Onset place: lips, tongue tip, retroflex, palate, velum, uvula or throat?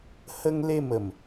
throat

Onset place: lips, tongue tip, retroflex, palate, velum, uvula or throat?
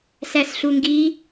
tongue tip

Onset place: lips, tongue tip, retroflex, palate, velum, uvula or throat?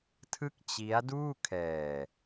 tongue tip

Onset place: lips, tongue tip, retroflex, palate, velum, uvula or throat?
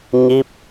palate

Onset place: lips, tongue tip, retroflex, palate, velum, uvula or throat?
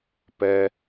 lips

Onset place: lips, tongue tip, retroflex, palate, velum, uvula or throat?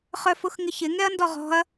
uvula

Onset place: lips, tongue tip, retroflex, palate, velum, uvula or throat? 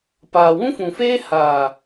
lips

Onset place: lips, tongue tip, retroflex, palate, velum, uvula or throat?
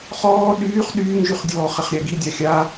uvula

